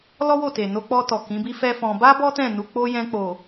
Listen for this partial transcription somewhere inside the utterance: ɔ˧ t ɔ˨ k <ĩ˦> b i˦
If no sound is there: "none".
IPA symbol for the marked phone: ĩ˨˦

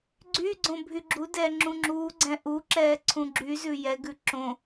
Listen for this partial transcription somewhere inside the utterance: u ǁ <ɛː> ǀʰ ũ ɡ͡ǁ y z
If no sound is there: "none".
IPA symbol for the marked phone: ɛː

